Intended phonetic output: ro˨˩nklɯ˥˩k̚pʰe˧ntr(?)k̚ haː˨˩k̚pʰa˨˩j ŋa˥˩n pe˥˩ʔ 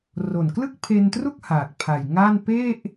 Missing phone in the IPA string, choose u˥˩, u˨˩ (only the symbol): u˥˩